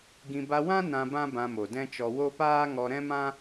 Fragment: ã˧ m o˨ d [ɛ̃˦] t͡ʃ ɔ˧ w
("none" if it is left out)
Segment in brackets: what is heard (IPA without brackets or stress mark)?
ɛ̃˦